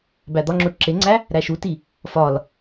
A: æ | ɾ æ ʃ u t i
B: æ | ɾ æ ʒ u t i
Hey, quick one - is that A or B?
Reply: A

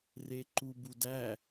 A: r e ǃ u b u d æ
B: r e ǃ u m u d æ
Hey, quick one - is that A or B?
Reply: A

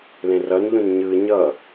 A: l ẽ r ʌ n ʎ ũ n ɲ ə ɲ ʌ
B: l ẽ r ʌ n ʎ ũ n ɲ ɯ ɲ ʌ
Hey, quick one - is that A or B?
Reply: B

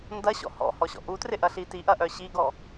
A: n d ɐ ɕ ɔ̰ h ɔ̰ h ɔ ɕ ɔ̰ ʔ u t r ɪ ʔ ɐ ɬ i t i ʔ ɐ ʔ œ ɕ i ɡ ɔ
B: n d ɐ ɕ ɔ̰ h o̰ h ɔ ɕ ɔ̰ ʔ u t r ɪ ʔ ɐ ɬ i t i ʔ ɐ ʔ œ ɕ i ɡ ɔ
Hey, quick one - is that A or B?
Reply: A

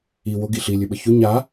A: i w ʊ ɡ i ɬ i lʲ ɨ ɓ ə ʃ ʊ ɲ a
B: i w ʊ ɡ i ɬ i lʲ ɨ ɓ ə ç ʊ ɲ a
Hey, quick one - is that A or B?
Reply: B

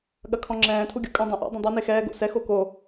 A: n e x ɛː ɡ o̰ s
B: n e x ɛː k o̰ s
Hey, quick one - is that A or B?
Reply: A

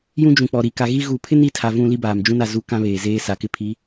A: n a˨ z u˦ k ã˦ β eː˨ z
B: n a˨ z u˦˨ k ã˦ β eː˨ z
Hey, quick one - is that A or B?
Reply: A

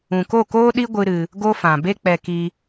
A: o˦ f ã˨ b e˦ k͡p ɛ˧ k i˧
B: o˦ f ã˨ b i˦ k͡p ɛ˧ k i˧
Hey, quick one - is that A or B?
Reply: A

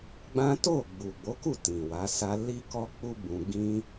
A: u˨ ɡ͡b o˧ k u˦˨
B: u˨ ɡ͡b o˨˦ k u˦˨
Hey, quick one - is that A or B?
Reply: B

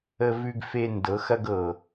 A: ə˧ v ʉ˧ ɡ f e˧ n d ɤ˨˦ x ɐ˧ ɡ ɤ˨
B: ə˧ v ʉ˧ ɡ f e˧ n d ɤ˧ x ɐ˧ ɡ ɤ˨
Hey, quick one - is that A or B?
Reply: A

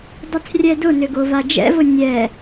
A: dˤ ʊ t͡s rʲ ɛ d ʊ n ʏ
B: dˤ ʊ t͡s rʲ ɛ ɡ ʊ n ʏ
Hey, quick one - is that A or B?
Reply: A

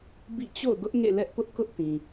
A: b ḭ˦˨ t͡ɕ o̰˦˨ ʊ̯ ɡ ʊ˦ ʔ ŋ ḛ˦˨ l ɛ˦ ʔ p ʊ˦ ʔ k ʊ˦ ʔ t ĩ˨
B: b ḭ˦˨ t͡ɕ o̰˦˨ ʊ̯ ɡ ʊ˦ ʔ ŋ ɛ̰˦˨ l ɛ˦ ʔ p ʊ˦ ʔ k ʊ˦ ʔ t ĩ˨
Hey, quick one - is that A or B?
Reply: A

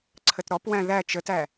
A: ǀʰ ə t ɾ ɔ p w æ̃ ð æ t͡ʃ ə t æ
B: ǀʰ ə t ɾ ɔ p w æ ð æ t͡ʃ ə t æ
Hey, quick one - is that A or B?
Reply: A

